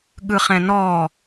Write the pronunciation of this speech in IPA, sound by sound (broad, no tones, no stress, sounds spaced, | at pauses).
ɠ ɯ χ ɛ̃ n ɔ